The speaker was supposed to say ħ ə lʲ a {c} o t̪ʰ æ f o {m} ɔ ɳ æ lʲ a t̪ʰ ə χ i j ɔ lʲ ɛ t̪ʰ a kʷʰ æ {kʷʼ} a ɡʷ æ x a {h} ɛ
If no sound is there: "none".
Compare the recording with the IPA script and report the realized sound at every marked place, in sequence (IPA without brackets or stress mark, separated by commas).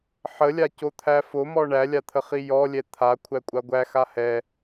c, m, kʷʼ, h